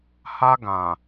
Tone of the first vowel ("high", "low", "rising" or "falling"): high